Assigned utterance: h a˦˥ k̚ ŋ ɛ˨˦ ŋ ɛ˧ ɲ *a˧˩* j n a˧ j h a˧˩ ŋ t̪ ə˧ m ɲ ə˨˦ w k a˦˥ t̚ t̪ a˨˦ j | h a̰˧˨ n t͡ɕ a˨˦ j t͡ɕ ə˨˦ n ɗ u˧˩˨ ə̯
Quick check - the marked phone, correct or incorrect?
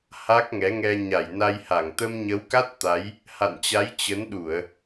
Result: correct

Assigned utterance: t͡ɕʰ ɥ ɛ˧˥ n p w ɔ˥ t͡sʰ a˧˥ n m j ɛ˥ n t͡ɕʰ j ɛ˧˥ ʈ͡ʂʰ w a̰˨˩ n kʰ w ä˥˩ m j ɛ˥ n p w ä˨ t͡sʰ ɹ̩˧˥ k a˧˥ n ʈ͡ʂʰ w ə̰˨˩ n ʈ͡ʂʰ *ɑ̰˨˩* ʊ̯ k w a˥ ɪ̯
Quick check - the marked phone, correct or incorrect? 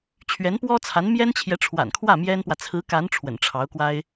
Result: incorrect: ɑ˧˥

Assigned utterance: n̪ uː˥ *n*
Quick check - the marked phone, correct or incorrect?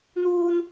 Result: correct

